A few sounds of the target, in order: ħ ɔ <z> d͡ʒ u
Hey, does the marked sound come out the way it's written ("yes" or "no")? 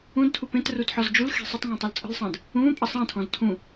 yes